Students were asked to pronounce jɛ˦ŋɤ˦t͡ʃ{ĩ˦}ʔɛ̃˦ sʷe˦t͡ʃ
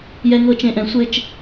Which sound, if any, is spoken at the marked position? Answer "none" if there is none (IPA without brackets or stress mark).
ẽ˦